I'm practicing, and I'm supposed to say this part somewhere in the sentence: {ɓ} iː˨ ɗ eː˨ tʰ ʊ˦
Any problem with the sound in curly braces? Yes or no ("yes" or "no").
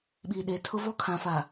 no